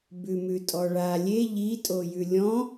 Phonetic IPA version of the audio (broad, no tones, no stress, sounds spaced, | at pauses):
b ʉ m ʉ tʼ ɔ ɭ a lʲ e ʎ i tʼ o j ʉ lʲ ɔ̃